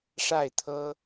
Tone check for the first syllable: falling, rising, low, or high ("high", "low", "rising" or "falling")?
falling